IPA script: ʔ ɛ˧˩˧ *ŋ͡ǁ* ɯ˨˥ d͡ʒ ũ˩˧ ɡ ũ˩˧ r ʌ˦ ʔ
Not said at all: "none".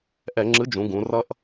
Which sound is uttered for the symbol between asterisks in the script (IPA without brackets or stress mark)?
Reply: ŋ͡ǁ